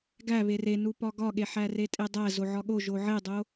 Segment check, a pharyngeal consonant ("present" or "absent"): present